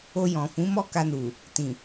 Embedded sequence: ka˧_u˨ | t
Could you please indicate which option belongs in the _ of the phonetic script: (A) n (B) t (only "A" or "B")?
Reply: A